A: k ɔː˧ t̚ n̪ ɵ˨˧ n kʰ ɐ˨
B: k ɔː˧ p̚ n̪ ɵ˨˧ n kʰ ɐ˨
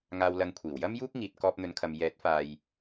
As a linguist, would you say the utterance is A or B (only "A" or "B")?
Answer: B